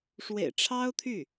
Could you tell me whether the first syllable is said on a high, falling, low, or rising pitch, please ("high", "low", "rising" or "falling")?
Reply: low